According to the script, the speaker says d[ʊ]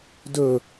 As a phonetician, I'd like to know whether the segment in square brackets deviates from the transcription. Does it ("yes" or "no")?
yes